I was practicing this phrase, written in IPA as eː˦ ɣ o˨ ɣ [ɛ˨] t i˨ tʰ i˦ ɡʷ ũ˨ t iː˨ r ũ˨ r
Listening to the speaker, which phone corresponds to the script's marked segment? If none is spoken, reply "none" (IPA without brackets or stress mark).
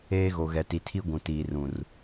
ɛ˨